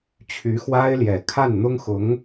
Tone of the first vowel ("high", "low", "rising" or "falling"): rising